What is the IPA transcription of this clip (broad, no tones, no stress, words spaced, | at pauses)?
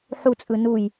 ħut͡sʼɯ nuj